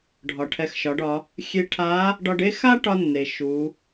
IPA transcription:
ɖʱɒ˩ʈʰɛ˩˧xʃɒ˩˧ɖ ɒ˩˧ | xʲe˧ ʈʰa˧˥ | ɖɒ˧ɖe˥ xa˥ʈɒ˧nːe˩ ʃu˩˧

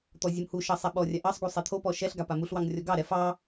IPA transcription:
t̪ɔzʲumhuʃɑ sˤɛɓɔrʲa ʔɑsˤɡu sˤɛt̪ʰopɔ ʃɛɬɡa pamuɬwɑŋ rʲɔɡɑɾɛ fɑ

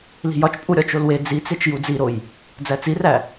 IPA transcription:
li̤jɒt͡ʃ pʼuɾʲɒt͡ʃolwe d͡zit͡set͡ʃ jud͡ziɾoj | d͡zæt͡siræ

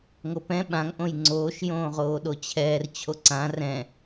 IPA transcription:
ŋopɛ̃ ɓãŋ ʔõjŋ͡ǀoːʃ jõːʁoːɗot͡ɕʰɛːr t͡ɕʰoǀã rɛ̃

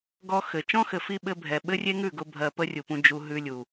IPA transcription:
ɡɔ˧ xɘ˨ t͡ʃɔ̃˦xɘ˨fi˧ ɓɘ˧bʱɛ˨ɓɘ˦ rʲe˦ŋʉ˦˨ɡʊ˧ bʱɜ˧ pə˦rʲu˨pũ˧ d͡ʒu˧ ɦʉ˧lʲu˨

